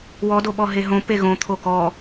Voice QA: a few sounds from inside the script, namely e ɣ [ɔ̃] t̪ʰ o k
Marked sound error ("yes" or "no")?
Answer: yes